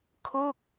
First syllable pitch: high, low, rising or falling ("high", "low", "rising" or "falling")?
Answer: falling